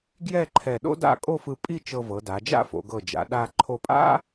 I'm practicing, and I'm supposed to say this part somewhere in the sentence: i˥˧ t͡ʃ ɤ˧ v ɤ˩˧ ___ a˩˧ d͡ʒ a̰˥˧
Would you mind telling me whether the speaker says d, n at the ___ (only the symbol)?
d